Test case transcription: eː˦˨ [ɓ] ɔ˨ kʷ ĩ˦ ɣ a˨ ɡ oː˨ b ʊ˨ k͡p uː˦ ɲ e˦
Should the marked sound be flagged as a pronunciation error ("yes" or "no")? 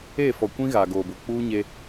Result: yes